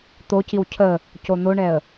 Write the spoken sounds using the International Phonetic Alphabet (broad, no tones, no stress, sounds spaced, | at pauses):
t̪ o c i w cʰ ə | c o n̪ o ɳ ɛ ə̯